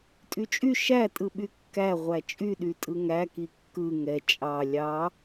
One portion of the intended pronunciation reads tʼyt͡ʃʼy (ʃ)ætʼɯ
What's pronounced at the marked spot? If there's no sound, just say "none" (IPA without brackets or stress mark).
ʃ